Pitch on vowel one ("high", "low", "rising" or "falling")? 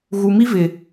low